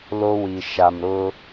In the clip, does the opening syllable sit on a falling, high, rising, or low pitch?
high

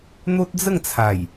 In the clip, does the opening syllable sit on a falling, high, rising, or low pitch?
high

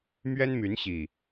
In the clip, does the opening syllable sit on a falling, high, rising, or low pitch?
high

